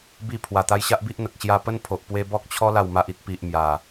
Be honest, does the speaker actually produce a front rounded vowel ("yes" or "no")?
no